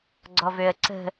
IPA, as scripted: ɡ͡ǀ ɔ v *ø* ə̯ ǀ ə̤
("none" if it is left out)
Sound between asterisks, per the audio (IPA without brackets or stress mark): ø